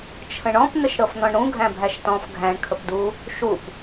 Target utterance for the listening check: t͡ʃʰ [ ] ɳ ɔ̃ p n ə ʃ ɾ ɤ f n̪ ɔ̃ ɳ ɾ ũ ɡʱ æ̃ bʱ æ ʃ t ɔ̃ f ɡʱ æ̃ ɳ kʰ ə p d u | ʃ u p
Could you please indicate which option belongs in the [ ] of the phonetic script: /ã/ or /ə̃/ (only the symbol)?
ə̃